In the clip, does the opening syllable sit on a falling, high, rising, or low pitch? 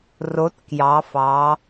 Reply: rising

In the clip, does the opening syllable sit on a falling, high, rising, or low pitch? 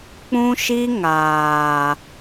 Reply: high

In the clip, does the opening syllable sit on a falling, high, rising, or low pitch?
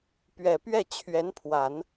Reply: low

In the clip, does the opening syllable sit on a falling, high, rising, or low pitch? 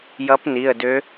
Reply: rising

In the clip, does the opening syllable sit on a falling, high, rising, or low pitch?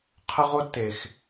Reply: high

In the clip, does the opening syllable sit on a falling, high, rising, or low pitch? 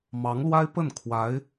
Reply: rising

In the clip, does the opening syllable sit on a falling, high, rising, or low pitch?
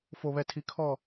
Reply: low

